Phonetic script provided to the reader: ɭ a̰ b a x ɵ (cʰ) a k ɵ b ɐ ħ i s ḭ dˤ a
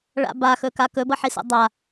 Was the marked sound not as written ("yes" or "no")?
yes